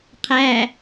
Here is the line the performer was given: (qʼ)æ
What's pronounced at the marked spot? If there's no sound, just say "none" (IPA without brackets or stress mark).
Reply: qʰ